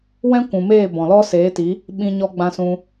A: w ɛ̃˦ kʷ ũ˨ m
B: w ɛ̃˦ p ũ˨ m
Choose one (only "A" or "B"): A